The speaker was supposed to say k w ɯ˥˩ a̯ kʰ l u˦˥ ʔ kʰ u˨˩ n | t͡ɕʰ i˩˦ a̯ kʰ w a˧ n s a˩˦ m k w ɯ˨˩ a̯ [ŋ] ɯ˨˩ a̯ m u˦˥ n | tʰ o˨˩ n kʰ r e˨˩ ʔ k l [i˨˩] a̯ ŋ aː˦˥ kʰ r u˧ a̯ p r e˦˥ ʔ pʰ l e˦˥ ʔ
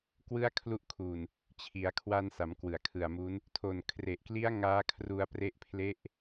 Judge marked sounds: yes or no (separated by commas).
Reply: no, no